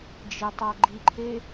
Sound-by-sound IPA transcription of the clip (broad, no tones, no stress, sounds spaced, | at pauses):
d͡ʒ e tˤ a ɡ͡ǃ i ǃʰ e